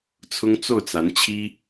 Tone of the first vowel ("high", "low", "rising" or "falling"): high